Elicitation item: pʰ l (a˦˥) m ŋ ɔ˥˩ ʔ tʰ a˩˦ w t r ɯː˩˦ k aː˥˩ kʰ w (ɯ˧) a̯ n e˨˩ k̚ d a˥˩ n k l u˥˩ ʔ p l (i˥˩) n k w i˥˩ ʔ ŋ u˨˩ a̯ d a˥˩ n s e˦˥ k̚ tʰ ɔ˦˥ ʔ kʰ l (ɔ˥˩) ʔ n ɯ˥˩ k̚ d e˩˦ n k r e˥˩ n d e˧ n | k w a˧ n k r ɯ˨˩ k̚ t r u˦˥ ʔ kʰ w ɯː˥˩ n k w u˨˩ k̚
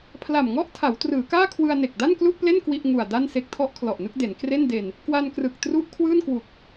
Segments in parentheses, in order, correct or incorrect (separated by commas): incorrect, correct, incorrect, incorrect